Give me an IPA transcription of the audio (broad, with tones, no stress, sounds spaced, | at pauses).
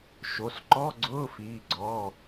ʃ o˩˧˩ s ǃ ɔ˧˥˧ ɡ͡ǀ ʊː˧˥˧ f iː˩˧˩ ɡ͡ǀ ɔ˩˧˩